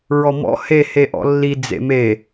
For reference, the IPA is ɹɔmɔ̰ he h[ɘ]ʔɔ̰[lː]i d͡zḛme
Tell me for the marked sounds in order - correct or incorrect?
incorrect: e, correct

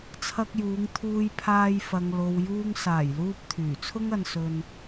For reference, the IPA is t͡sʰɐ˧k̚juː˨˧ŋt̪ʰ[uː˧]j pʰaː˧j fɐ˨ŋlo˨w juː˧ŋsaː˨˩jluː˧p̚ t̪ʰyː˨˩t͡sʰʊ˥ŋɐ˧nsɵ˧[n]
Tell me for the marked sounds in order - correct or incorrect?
correct, correct

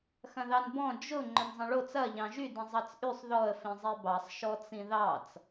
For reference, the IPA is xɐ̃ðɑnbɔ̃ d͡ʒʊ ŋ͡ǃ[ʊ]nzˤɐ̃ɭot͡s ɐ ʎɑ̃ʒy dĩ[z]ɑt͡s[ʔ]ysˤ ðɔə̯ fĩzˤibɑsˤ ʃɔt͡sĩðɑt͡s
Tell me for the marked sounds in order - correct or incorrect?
correct, incorrect: zˤ, correct

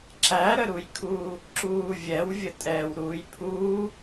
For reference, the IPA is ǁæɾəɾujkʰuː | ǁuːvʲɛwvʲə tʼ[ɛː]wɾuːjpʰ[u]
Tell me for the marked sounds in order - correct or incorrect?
correct, incorrect: uː

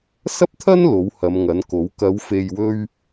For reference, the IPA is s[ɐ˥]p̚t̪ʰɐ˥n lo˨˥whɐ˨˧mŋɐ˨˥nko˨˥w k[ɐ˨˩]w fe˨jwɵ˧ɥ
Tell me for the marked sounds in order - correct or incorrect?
correct, incorrect: ɐ˨˧

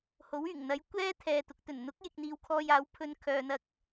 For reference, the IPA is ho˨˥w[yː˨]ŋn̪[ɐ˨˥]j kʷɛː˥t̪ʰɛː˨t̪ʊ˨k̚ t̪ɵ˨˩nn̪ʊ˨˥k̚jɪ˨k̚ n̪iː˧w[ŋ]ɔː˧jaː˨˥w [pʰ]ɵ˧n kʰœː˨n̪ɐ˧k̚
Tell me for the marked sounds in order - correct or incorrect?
incorrect: yː˨˩, correct, incorrect: kʰ, correct

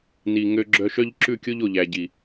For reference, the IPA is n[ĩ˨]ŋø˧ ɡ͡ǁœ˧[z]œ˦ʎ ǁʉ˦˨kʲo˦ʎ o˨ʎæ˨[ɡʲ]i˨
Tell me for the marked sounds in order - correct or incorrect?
incorrect: i˨, incorrect: ʃ, incorrect: ɟ

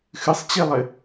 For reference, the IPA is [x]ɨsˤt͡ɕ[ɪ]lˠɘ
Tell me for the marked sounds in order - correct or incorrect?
correct, incorrect: i

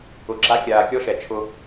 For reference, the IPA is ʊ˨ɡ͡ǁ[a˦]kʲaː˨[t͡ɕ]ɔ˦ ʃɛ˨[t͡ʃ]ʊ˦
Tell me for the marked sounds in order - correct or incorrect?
correct, incorrect: kʲ, incorrect: t͡ʃʰ

